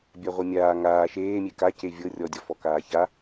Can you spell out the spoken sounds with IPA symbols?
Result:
bʲaʁʷɤmʲaː ŋaː ʃeːmʲe ka cevʲɤ rʲɔdʲɔfɔ kaːça

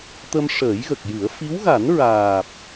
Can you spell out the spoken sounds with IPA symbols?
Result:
t̪ə˧mʂəː˨˩˦jɣə˨˩k̚jɨ˨˩˦ə̯ fi˧˥wɣa˨˩˦nɹaː˨˩p̚

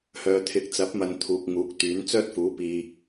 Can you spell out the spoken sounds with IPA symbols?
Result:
hœː˨t̪ʰɪ˨˥k̚t͡sɐ˨˥p̚mɐ˨n t̪ʰuː˨k̚ŋuː˨˥k̚t̪yː˨˥n t͡sœː˥t̚fuː˨˥ piː˨

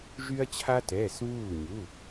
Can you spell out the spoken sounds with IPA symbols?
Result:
ʒy˦ɐ̯t͡ɕʰa˦tɛː˩˧˩s βuː˧˩ɲu˩˧˩

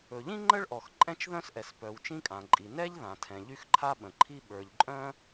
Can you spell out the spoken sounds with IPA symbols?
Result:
ɵ˩ʎĩ˥ ŋ͡ǃə˥ɭʔɔ˩x ǃʼɛ̃˥t͡ʃðœ̃˥sʔɛ˩spœ˩w t͡ʃĩ˥kʼã˩ǃʼi˩ nɛ˥ʎðã˩tʰɛ̃˩ ʎy˥xǃʰa˥ɓə̃˩ǃʰi˥ ɓə˞˩ʎǃʼœ̃˥

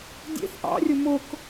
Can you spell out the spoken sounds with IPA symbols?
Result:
dʲḛθ ʔɑ̰rʲʊ mʊk

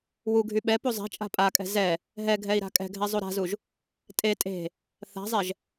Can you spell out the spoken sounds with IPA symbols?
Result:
wuɡʱy ɓɛ puzˤɛ̤t͡ʃʼa̤ pʼakʼɛ̤ zɛ | ɦɛɡʱɛi̯ ɾa̤kʼɛ̤ɡʱɛ zˤuɾa̤zuʒ | tʼe tʼe̤ | θa̤zˤɛʒ

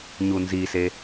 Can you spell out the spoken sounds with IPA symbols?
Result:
ɲunzise

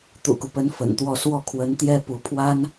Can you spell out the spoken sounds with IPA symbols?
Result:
t̪ṵ˨˩ku˦pə˧˥n fə̰˨˩nt̪wɔ˥˧ swɔ˥˩kʰwə˧˥nt̪jɛ˥ pu˧˥ pʰwa˥n

